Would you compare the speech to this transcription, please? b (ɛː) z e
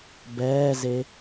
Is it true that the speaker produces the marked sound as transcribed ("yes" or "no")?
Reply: yes